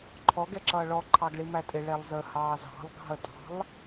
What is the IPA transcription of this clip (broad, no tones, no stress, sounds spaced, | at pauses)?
ǃʰ ɔ ɡ ɛ ǁ ʌː ɭ ɔ ǃʰ ɑ ɡ ɭ i m æ tʼ ɪ ɭ ɛ lˠ z ə h ɑː z ɑ̤ lˠ ɡ ɑ̤ ə̯ tʼ ɑ̤ lˠ